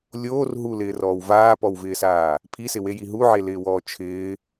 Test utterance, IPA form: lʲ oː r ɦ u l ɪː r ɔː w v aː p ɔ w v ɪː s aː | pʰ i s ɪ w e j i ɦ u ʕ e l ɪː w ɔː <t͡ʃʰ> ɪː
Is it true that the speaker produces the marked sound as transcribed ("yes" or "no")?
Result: yes